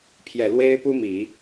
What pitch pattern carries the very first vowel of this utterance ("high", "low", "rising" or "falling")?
low